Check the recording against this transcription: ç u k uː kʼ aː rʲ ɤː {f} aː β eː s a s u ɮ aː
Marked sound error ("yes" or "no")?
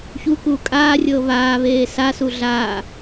yes